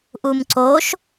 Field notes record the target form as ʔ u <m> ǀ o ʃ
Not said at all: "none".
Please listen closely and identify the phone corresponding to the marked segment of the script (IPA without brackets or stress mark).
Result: m